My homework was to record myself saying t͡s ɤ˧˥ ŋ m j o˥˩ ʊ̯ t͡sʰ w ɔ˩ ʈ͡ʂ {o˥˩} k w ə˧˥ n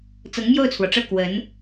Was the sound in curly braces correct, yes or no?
no